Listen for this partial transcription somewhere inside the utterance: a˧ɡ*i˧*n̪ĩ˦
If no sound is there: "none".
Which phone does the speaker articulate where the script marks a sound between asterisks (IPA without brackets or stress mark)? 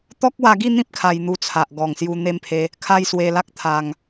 i˥˧